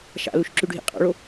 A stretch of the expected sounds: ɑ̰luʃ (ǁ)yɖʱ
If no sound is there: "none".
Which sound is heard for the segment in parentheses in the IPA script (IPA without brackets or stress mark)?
ǁ